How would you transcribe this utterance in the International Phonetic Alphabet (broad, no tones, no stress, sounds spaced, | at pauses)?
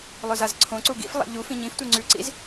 lˠ ɵ z a z ǀʰ õ ǀ u ɡ ḭ f lˠ a̰ ʎ u f ĩ ɲ ĩ f tʷ e ŋ͡ǀ ʉ ǀ ḭ z